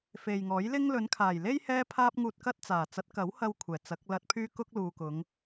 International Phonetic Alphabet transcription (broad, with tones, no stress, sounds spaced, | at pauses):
f e˨ j ŋ ɔː˨˥ j l ɪ˥ ŋ l ɵ˨˧ n kʰ aː˨˩ j l e˥ j h ɛː˥ pʰ aː˥ p̚ ŋ uː˧ t̚ k ɐ˥ t̚ t͡s aː˨˩ t͡s ɐ˨˥ t̚ k ɐ˨˥ w h ɐ˧ w kʷʰ ɛː˨˩ t͡s ɐ˨˥ k̚ l ɐ˧ t̚ pʰ yː˥ k ʊ˥ k̚ l uː˨ k ʊ˨˧ ŋ